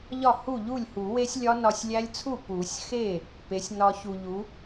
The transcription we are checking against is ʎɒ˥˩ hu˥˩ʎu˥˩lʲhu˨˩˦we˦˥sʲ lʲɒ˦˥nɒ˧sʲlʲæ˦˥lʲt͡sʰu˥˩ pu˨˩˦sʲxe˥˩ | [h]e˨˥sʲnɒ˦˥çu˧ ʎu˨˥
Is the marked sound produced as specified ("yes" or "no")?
no